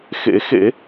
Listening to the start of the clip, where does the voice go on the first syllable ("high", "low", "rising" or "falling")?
rising